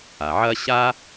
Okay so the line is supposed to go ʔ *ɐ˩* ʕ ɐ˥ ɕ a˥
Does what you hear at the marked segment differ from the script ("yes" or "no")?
yes